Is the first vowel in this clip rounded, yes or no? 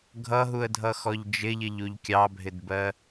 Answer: no